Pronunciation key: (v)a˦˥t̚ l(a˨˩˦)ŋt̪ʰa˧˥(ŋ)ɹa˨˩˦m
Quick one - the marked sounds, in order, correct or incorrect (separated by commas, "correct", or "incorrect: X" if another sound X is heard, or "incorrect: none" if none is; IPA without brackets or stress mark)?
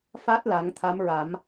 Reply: incorrect: f, correct, incorrect: m